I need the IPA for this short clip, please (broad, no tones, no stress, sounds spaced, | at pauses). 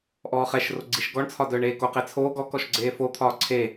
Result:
ʔ ɔː χ ɛ ʃ r o ɡ͡ǀ i ʃ ɡ ɔ ɳ t͡sʰ ɒ d œː ɳ eː k o q e t͡sʰ oː ɡ ɔ k ɔ ʃ ɡ͡ǀ eː f o t̪ʰ ɒː ǀʰ e